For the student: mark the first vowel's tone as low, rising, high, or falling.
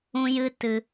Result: high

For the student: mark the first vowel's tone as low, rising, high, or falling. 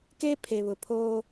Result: high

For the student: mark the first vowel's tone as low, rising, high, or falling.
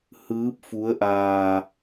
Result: rising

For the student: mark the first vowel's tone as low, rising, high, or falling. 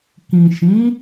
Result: low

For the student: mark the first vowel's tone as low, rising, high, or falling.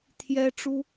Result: high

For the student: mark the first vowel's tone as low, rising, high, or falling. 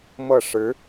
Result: falling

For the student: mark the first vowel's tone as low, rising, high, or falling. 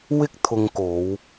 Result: high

